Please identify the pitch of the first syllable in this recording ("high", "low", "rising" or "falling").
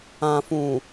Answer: low